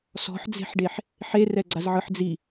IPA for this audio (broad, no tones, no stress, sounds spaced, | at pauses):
s ɔ̤ ħ d͡z e̤ ħ ɖ e ħ | ħ e r ɛ ɡ͡ǀ a z ʕ ɯ ħ d͡z i